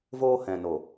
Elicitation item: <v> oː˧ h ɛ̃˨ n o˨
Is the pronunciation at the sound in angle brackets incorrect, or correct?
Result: correct